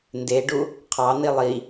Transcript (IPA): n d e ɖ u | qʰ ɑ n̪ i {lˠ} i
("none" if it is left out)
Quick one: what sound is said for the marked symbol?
lˠ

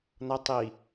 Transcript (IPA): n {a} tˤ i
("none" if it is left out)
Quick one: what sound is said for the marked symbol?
ʌ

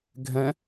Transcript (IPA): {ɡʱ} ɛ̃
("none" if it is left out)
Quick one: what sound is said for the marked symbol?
ɡʱ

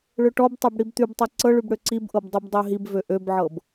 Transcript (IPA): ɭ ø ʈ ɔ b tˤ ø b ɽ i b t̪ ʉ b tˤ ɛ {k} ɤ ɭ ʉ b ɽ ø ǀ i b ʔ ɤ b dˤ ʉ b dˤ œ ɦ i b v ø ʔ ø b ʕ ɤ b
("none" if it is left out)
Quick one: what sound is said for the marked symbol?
ǀ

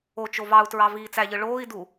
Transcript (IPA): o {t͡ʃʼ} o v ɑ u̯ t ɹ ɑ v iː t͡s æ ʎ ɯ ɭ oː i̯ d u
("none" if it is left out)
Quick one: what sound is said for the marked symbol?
t͡ʃ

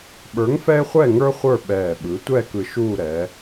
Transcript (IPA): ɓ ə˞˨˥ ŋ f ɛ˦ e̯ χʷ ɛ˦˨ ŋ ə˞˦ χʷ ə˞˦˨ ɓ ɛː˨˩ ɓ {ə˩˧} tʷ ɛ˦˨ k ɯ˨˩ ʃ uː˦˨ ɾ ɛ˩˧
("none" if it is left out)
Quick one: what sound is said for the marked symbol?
ɯ˩˧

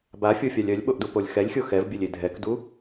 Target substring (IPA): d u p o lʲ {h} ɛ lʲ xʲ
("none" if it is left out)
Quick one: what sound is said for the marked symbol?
x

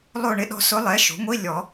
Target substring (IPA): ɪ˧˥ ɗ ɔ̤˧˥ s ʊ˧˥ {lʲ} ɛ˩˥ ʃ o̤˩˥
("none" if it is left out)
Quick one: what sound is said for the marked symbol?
lˠ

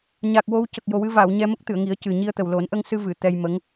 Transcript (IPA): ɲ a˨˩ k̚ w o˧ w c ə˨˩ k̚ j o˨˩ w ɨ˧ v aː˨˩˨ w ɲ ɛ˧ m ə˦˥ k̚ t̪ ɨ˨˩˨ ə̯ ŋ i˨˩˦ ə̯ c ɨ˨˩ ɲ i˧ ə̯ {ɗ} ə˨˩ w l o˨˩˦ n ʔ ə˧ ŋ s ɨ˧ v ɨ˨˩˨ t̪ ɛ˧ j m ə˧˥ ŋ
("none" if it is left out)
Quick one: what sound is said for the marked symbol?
t̪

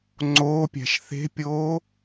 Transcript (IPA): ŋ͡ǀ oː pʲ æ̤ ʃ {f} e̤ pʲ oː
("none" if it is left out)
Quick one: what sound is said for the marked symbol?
θ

